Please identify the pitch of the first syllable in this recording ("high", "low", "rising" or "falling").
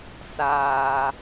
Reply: low